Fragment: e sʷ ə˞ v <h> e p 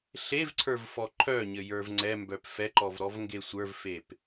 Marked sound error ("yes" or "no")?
yes